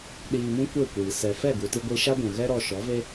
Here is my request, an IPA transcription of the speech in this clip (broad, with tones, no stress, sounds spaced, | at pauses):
ɗ iː˧ m ũ˦ kʷ e˦˨ kʷ iː˨ s ɛ˨ f ɛ˦˨ ɡ u˨ t i˧ ɡʷ i˧ ʃ a˦ ɡʷ ũ˨ ɣ ɛ˦ ɾ ɔ˧ ʃ ɔ˨˦ v e˦